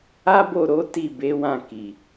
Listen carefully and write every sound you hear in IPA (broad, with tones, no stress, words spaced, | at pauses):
a˦bo˦˨ ɾo˨˦ ti˦˨be˨˦wã˦˨ ki˨